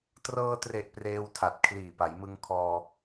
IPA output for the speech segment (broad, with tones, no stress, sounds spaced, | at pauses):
t r ɤː˧ t r e˨˩ ʔ p r eː˧ w tʰ a˨˩ t̚ kʰ l iː˨˩ p a˩˦ j m ɯ˧ ŋ kʰ ɔː˧